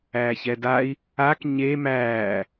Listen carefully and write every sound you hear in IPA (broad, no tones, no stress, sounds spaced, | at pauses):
æː ç ɛ d a i̯ | a k ɲ e m æː